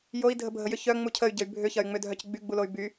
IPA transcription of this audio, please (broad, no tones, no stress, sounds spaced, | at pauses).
j o i̯ dʱ ə bʱ ə j ʏ ç œ ŋ͡m u cʰ ə y̯ ɟ ə y̯ bʱ ʏ ç ɐ y̯ ŋ͡m ʏ dʱ œ c ɡ͡b y ɡ͡b u l o y̯ b y